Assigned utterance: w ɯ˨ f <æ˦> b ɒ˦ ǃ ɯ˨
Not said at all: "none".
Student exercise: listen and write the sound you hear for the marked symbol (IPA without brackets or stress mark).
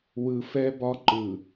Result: ɛ˦